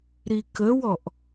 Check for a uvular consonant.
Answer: absent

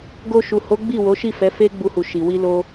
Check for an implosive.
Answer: absent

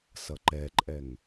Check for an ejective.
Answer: present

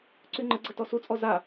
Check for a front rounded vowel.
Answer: present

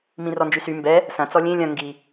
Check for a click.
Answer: absent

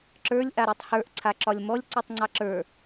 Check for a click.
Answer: present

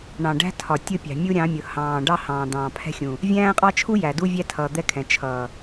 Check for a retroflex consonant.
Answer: present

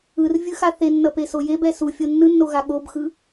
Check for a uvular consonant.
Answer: absent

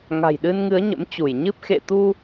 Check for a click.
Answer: absent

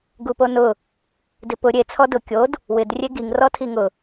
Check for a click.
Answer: absent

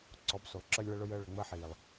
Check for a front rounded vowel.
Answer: absent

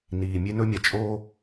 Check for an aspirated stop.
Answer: absent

